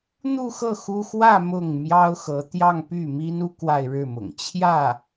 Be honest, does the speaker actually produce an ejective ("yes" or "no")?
no